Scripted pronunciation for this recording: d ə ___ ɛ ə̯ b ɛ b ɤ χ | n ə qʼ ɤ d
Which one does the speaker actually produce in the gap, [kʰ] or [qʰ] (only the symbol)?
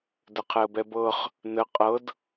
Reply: qʰ